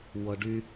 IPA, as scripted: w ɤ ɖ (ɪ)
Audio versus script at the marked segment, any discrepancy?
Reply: yes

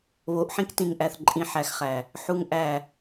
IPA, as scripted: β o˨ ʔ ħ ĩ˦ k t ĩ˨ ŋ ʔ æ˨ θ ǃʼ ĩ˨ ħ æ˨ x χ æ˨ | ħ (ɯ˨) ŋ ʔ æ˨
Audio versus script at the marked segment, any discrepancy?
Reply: yes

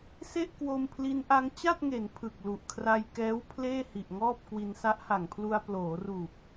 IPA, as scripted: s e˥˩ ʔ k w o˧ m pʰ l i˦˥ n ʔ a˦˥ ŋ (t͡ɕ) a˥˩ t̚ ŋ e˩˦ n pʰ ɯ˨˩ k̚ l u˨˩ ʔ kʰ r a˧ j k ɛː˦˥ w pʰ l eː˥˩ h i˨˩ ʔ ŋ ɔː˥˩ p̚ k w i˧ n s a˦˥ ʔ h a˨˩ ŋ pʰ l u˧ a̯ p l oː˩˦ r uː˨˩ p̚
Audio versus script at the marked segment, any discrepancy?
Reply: no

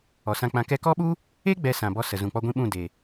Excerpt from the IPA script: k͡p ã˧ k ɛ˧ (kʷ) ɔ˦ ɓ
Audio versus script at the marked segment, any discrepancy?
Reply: yes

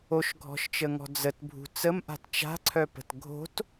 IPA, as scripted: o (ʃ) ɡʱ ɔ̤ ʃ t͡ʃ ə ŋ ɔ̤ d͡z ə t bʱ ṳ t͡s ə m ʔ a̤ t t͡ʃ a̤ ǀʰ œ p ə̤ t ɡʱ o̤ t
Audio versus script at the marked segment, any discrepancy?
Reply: no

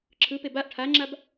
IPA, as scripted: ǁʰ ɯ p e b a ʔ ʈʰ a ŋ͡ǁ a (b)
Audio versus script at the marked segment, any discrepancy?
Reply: no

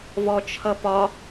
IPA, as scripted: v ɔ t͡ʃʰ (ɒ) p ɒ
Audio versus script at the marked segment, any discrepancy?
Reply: yes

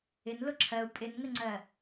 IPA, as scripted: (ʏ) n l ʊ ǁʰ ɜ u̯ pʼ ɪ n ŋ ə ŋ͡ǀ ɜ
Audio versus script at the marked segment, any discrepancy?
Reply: yes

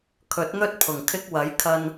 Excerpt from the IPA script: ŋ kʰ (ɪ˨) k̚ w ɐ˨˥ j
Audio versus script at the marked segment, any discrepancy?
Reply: yes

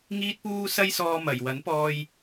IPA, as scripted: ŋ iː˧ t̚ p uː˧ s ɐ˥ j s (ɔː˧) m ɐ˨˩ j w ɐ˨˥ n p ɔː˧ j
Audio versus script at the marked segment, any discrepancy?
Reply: no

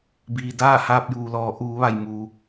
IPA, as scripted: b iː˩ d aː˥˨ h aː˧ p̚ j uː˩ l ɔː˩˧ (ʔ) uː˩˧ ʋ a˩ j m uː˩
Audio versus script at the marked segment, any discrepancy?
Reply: no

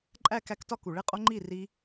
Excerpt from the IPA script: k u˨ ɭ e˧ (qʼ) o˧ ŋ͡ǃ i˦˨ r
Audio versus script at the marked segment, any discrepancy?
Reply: no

